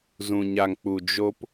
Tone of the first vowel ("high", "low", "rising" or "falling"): low